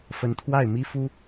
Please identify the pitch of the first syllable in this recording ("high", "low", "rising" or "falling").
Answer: rising